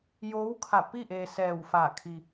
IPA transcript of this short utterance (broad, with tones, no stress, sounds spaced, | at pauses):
j oː˧˥ w kʰ a˧˩ p i˥˨ ʔ eː˧ s ɛː˧˩ w f a˧˩ kʰ i˧